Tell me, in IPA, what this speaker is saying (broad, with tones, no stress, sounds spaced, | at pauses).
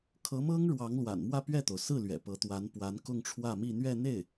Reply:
kʰ ɤ˧˥ m ɤ˥ ŋ ɻ w ɑ˧˥ ŋ l w a̰˨˩ n m w ä˥˧ p ɥ ɛ˥˩ t̪ o˩ ʊ̯ s ɹ̩˥˩ l ɥ ɛ̰˨˩ p ɤ˧˥ t̪ w a˧˥ n p w a˧˥ n k ʊ˥˧ ŋ ʈ͡ʂʰ w ä˥˧ m i˥˧ n̪ ɥ ɛ˥˧ n̪ e˥˩ ɪ̯